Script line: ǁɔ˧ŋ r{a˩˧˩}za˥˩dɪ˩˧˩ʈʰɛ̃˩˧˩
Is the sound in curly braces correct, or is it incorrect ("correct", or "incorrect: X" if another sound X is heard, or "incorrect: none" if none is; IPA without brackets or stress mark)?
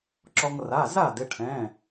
correct